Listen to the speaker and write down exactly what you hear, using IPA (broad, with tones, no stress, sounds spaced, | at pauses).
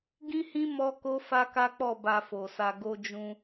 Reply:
ɡ ĩ˦ h ĩ˦ m ɔ˦ k o˦ f a˦ k a˦ k͡p ɔ˦˨ b a˧ f o˨ s a˧ ɡ o˧ d͡ʒ ũ˧